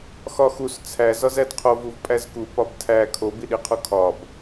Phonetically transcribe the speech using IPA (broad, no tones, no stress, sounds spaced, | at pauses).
x ɒ x u s t͡sʰ æ z ɒ z æ d qʰ o v u v pʼ æ z k u p ɒ b tʰ æ kʰ o b i ɗ i qʰ u kʰ ɒ b